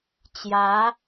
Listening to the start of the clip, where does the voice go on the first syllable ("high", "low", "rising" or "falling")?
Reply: rising